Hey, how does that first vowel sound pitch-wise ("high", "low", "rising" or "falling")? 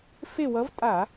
falling